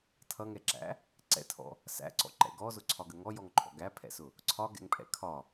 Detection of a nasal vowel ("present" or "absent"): absent